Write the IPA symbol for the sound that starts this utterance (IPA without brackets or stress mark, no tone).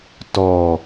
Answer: t